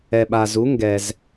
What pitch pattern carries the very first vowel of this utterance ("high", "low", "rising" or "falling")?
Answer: low